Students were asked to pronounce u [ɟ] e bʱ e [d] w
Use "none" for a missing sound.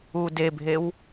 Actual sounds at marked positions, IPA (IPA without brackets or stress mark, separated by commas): d, none